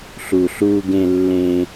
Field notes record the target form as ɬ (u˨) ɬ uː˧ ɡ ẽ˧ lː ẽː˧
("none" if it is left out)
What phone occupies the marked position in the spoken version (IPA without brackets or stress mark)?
u˨